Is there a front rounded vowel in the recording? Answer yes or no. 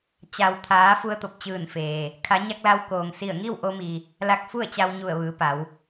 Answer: no